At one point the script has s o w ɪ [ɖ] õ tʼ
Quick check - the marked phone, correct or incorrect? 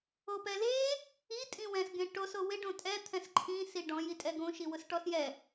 correct